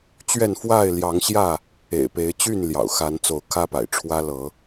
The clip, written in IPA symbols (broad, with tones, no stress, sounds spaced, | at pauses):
t͡ɕ ɥ ɛ˥˨ n f w a˥˨ ɪ̯ l j ɑ˨˦ ŋ ɕ j ä˥˨ | ḛ˨˩ ɪ̯ p e˨˦ ɪ̯ t͡ɕ y˥˨ n l j ɑ̰˨˩ ʊ̯ x a˨˦ n t͡s o˨˦ ʊ̯ kʰ ä˦ p a̰˨˩ ɪ̯ ʈ͡ʂʰ w ä˦ l ɤ˨˦